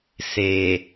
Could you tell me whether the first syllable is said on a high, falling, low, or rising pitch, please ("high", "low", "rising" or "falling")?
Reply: low